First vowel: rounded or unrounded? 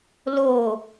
rounded